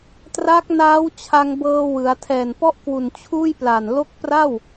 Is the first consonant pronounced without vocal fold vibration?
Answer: yes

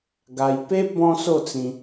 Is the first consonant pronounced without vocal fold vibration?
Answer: no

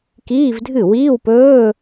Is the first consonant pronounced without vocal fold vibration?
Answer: yes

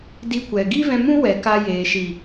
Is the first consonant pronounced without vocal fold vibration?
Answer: no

